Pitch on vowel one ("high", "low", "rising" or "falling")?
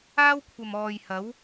high